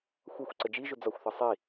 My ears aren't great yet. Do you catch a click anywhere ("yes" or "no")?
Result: yes